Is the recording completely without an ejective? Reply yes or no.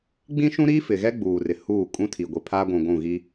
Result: no